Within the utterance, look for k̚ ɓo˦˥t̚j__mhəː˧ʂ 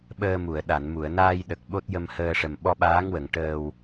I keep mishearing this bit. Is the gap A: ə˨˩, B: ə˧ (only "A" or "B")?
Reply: B